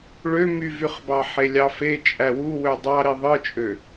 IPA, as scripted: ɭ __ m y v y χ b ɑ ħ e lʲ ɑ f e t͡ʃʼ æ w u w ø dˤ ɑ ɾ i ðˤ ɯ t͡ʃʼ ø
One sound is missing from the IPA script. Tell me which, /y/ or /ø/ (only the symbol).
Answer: ø